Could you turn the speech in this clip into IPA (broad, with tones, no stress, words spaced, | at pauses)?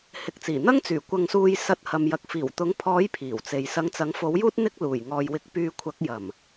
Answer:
hɪ˨k̚t͡siː˨˩n̪ɐ˥ŋt͡syː˨˩ kʷɐ˧ŋsuː˧j sɐ˧t̚hɐ˨m jɐ˨k̚fiː˨˩wt̪ʊ˨˥ŋ pʰɔː˨˥j pʰiː˨˩wt͡se˨j sɐ˨˧ŋt͡sɐ˨˥ŋfo˨˥wjuː˥t̚ n̪ɪ˥k̚luː˨˩j ŋɔː˨jwɪ˧k̚pyː˧ kʷʰɐ˨˥k̚jɐ˨˩m